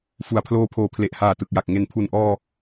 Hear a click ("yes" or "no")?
no